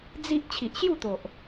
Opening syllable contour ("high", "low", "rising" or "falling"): high